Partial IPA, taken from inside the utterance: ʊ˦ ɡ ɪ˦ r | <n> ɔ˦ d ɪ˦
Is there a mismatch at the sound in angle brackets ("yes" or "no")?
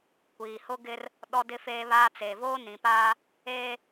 yes